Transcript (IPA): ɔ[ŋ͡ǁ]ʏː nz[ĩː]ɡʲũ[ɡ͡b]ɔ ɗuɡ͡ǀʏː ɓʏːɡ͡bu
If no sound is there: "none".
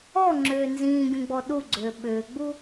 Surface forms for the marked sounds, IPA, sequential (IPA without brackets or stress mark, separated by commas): ŋ͡ǁ, ĩː, ɡ͡b